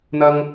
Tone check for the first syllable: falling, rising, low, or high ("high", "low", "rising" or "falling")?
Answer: low